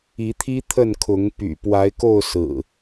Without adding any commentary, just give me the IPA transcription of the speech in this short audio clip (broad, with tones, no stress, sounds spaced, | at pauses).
i˨˦ t̪ʰ i˦ t̪ʰ ə˥˨ n kʰ ʊ˨˦ ŋ p y̰˨˩ p w a˨˦ ɪ̯ k o˥˨ ʊ̯ s ɹ̩˨˩